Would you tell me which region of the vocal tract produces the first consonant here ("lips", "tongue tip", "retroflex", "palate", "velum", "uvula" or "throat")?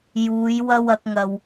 palate